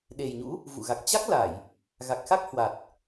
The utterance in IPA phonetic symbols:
ɗ e˨˩ j ɲ ṵ˧˥ | v ṵ˧˨ ɣ a˨˩ k̚ t͡ɕ a˦˥ k̚ l a˧˩˨ j | ɣ a˨˩ k̚ x a˦˥ k̚ h w a˨˩ t̚

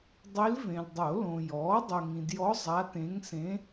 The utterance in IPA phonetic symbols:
dˤ i˧˥ l v ẽ˨ l dˤ o˨˩˦ l õ˨ j ɔː˩˥ dˤ o˨ ŋ ĩ˨ d j ɔ˧˥ zˤ a˧˥ t ẽ˧˥ ŋ s ẽ˧˥

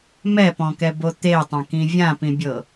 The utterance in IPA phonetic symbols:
m ɛ p ɔ̃ k ɛ b o t̪ e tˤ ã k ĩ vʲ ã p ĩ bʲ ɤ

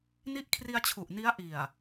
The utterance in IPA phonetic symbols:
n i˦˥ ʔ kʰ r i˧ a̯ t͡ɕʰ u˨˩ ʔ n i˦˥ a̯ ʔ i˨˩ a̯

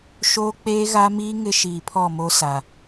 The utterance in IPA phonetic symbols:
ʃ oː˦ k͡p eː˦ ɣ a˦ m iː˦ ŋ ɪ˦ ʃ iː˨ pʰ ɔ˦˨ m o˦ s a˨

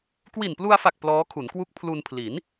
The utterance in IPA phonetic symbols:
k w i˨˩ n p l u˧ a̯ f a˨˩ k̚ p l ɔː˦˥ kʰ u˩˦ n k w u˦˥ k̚ pʰ l u˧ n pʰ l i˩˦ n

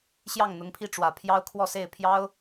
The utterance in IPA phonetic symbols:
ɕ j ɑ˥˩ ŋ n̪ ʊ˧˥ ŋ pʰ i˥˩ ʈ͡ʂ w ä˨˩ pʰ j ɑ˥ ʊ̯ kʰ w ɔ˥˧ s e˥˩ ɪ̯ pʰ j ɑ˥ ʊ̯

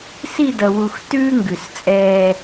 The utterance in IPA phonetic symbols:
s i˦˨ d ʌ˨ w u˨ x t ʉː˦ ŋ ɡ ʉ˨ s t͡sʼ ɛː˦

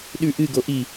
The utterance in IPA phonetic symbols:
ɗ ʉ ʔ ɨ ɡ o ʔ i

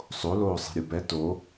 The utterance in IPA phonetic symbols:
sˤ o l oː sˤ e̤ ɾʲ u b ɛ t o

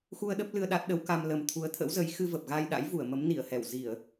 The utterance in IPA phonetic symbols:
x u˧ ə̯ ɗ ə˦˥ p̚ l ɨ˧ ə̯ ɗ a˦˥ t̚ ɗ ə˨˦ w k a˧ m l ə˨˩ m t̪ʰ u˨˦ ə̯ t̪ʰ ə̰˧˥ w z ə˨˦ j x ɨ˧ v ə˨˩ p̚ ɣ a˧ j ɗ a̰˧˥ j v u˧˩ ə̯ m ə˨˦ m n i˧˩ ə̯ h ɛ˧˩ w z i˧˩˨ ə̯

